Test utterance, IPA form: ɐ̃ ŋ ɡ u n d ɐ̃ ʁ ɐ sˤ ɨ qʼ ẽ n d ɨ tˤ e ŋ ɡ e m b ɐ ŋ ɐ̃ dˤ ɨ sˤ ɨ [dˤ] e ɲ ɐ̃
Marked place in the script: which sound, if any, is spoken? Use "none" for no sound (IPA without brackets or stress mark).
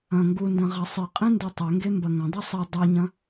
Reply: dˤ